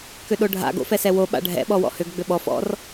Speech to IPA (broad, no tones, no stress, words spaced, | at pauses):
kʏɗoɖʱa̰ɡ o̰fɛsɛwo ɓa̰ɖʱɛ̰ ɓɔwɔ̰hʏɡ ɡ͡bʏɓɔf ɔ̰r